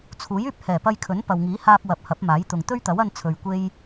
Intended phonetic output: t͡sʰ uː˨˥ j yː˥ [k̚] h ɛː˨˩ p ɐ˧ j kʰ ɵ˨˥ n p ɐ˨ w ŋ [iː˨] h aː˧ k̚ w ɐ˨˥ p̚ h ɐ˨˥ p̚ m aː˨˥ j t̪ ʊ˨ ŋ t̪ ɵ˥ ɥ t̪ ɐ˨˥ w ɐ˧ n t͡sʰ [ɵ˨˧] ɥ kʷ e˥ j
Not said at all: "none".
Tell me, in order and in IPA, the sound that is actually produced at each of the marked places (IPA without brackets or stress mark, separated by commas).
p̚, iː˨˥, ɵ˨